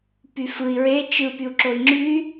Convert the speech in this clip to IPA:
pyfɯi̯ ɹe t͡ʃɯ pyu̯ǁoi̯ŋ͡ǁy

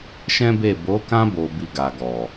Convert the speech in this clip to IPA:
ʃɛ̃˦be˦˨ bo˨˦kã˦ bo˧bi˧ ɡa˨ɡɔ˨

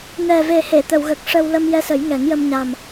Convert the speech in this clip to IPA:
nɛ˨˩ve˨˩he˨˩˨ t̪ə˨˩˨wɣə˨˩k̚ʂə˧w lə˧mjɛ˧sə˨˩˦j ŋɛ˨˩˦ŋjə˧mɲa˨˩m

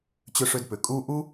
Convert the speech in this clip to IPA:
t͡ɕʏ˧ʂʏ˧dpʏ˩ kʼu˥ ʔu˥

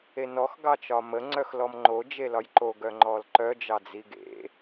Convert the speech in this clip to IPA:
enɔx ɡɑt͡ʃɒmə ŋ͡ǀœxlɔmŋ͡ǃo d͡ʒelɒjǃo ɡœŋ͡ǃɔlǃœ d͡ʒɑd͡ziɡḛ

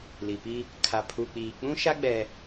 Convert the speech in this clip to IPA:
li˨pi˦ | kʰa˨ pʰu˨k͡piː˨ k͡pũ˦ʃa˦ ɡ͡bɛ˦

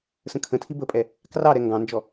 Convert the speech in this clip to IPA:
sə̃kʰə̃tʰi bəpʼɛ | krɑɾɛ ŋɡɑ̃nd͡ʒɔ

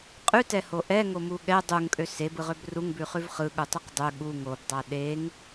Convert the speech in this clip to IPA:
qʼʉtɛho ʔɛŋomu ɠɛ dˤuŋkʼø sebɯʁøb ruŋbʉχʉv χɯɠutˤʉq dˤø ɠu ŋobdˤa ɗeŋ

